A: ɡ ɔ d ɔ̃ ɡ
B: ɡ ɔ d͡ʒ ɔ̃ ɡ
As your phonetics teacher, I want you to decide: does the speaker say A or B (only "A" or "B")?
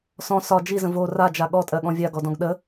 A